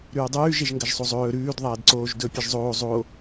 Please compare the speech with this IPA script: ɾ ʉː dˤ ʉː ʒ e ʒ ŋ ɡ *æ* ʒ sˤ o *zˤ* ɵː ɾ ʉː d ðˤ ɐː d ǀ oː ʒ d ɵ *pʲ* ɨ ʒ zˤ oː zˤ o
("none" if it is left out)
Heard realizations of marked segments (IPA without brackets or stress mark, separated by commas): ɐ, zˤ, pʲ